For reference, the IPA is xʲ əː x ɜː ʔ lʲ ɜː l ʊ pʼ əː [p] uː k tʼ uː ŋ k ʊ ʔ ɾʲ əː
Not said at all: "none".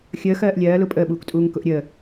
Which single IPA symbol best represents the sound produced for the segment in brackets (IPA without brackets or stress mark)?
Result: ɓ